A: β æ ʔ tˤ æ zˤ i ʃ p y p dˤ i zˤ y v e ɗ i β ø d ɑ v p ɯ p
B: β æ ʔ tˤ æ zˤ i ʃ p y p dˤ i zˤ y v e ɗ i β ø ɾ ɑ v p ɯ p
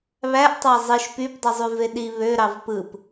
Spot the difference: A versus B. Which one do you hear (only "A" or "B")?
B